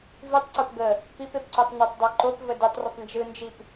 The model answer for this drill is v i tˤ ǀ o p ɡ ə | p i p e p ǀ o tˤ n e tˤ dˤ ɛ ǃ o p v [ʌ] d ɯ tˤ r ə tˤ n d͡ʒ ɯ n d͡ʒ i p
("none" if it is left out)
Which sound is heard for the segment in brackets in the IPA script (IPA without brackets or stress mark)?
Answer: ə